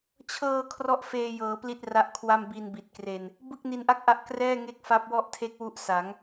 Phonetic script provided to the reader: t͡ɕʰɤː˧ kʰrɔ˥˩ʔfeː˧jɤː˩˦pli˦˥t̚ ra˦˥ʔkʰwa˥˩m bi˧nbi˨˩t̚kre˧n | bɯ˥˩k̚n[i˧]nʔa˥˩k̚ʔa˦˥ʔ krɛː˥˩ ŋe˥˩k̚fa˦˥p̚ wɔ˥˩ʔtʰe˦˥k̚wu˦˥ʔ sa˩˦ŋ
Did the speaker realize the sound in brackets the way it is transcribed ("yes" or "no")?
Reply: yes